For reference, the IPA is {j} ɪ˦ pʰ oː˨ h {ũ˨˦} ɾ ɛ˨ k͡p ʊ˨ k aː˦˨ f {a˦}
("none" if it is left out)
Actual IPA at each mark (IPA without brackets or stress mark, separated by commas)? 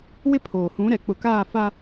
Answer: w, ũ˨˦, a˦